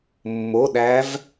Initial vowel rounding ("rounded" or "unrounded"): rounded